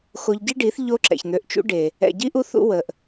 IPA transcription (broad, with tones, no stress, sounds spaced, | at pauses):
x o˧ ʎ ɟ i˦ ɖ i˨˦ θ ʎ o˦ ǁ ɛ̰˨ ç n̪ ø˨ ʔ t͡ʃ ṵ˧ ɖ e˨ | ɛ̰˨ ɟ i˧ ʔ u˧ θ ṵ˧ w ə˨ ʔ